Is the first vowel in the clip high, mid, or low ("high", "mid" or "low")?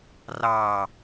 low